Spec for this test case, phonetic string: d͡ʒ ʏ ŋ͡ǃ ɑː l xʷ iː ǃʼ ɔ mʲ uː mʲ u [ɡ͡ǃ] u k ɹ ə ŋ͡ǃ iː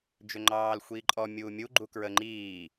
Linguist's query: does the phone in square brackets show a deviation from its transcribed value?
no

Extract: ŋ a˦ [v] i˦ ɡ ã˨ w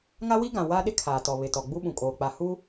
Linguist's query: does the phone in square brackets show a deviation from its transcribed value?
yes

